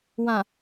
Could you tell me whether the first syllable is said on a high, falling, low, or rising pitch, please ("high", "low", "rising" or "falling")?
low